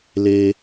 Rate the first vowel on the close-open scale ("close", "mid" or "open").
mid